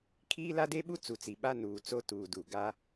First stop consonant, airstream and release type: aspirated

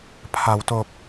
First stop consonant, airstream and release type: aspirated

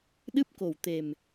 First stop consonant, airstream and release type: implosive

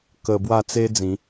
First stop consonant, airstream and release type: plain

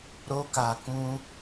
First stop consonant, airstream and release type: plain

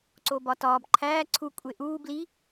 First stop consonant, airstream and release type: click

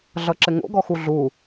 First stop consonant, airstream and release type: click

